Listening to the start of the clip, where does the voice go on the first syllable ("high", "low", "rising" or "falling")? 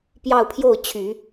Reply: falling